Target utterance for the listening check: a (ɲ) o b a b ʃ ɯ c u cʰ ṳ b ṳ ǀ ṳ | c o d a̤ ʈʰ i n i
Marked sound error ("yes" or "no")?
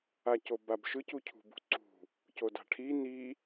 yes